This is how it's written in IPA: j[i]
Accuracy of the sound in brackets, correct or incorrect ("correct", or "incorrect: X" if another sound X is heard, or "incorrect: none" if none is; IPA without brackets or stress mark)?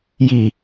correct